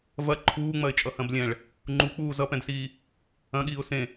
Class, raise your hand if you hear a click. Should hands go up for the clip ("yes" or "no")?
yes